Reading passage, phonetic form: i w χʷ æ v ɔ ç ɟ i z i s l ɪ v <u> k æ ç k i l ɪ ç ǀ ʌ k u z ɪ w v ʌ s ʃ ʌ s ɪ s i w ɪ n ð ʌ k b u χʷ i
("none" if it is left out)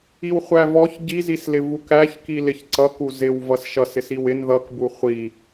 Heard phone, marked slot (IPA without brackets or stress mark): u